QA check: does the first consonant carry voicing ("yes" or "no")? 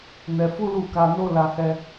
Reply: yes